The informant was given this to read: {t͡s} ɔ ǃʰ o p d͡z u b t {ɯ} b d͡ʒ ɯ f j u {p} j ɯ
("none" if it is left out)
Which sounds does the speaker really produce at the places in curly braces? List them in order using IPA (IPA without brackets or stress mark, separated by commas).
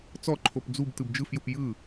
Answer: t͡s, ɯ, p